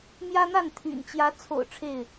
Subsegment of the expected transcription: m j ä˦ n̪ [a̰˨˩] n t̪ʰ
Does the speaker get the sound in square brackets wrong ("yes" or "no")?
yes